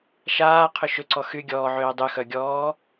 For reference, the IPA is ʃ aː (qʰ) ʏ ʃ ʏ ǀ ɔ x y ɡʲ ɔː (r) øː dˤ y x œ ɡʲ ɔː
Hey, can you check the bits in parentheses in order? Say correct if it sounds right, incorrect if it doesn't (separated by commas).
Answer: correct, incorrect